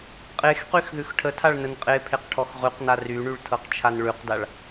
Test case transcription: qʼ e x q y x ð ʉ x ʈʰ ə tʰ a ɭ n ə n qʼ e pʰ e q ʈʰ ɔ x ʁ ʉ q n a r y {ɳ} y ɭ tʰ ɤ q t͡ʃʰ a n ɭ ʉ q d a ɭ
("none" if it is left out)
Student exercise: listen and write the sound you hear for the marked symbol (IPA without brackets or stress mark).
ɳ